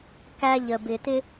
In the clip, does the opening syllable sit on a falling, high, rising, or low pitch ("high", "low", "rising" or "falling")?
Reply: high